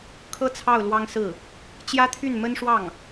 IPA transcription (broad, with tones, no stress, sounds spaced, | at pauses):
kʰ ɤ˥˧ t͡sʰ ɑ˥˩ ʊ̯ l w ɑ˥ ŋ s ɹ̩˥˩ | t͡ɕ j ä˥ t̪ʰ y˥˩ n m ə˥ n ʂ w ɑ˥˩ ŋ